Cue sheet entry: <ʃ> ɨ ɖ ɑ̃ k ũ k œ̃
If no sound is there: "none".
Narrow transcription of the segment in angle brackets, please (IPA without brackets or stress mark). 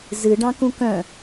z